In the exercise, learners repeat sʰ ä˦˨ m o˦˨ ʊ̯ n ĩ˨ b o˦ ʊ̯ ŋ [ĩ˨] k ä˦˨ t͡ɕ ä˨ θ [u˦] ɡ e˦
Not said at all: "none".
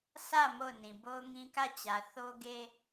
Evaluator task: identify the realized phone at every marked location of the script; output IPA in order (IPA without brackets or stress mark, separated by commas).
ĩ˦, o˦